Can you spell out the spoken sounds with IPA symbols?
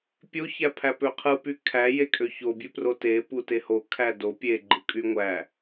pʲ o ç æ pʰ æ p ø qʰ ɯ p y kʰ æ j e kʼ ø ç o bʲ ø p r o t e p u t e h o kʰ æ d o pʲ e ɡ͡ǃ ɯ kʼ y ŋʷ æ

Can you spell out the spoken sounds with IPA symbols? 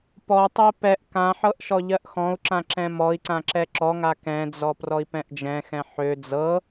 p ɔ tˤ ɜ p ɛ ʔ k ã ħ ɤ ʔ ʃ ɔ ʎ ɜ ʔ x ɔ̃ u̯ ǁ ã ǁ ɛ̃ m ɔ i̯ ǀ ã ǁ ɛ ǁ ɔ ŋ a k ɛ̃ d͡z ɔ p r ɔ i̯ p ɛ̃ ʔ d͡ʒ ɛ̃ x ɛ̃ ħ ø d͡z ɤ

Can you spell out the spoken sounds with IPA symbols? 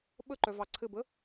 ɓ ə ǃ œ v ɑ ǀʰ ɘ b ə

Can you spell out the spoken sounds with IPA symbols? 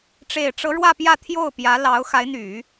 ʈ͡ʂ e˨˩ ɪ̯ ʈ͡ʂ ɤ˧˥ ɻ w ä˥˧ p j ä˥˧ t̪ʰ j o˥˩ ʊ̯ p j ä˧˥ l ɑ˧˥ ʊ̯ x a˧˥ ɪ̯ n̪ y˨˩˦

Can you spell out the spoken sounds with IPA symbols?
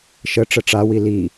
ʃ ə ʈ͡ʂ ə ʈ͡ʂ a w i l i

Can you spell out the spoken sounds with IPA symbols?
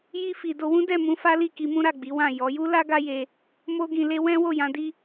j i˧ f i˨ d o˧ w ũ˦ d ɛ˦˨ m ũ˧ f a˦ l i˦˨ k i˨˦ m ũ˦ ɾ a˦˨ ɡ͡b i˨˦ w ã˦˨ j ɔ˨˦ j u˦ l a˦ ɡ a˦ j e˧ | m o˦ ɡ ĩ˧ l e˦ w ɛ̃˦ w o˦˨ j ã˧ d i˦

